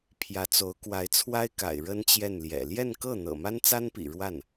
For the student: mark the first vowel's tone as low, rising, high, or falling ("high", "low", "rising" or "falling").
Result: rising